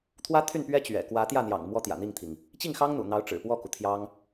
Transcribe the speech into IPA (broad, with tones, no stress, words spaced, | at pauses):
t̪ʰwä˥ t̪ʰy˥˩npɥɛ˥ t͡ɕɥɛ̰˨˩kwä˧˥ t̪jä˥˩n̪jɑ̰˨˩ŋ mwɔ˥t̪jä̰˨˩n̪i˥˩ŋt̪ʰi˩ŋ | t͡ɕi˥˩ŋxɑ˥ŋn̪ṵ˨˩ n̪ɑ˧˥ʊ̯ʈ͡ʂɻ̩˨˩pwɔ˥˩ku˩ t̪ʰjɑ˥ŋ